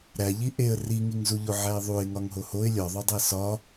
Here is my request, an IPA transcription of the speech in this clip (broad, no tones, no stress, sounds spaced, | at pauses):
ɾ æ ʎ i ʔ e ə̯ r i ŋ i ŋ z u ʎ o ʕ æ ɪ̯ ðˤ u ɪ̯ ŋ ɒ ŋ ɦ o h o ɪ̯ lʲ ɒ ðˤ o dˤ e s ɒ